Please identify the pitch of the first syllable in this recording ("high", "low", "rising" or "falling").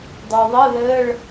low